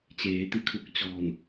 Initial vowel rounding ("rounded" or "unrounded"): unrounded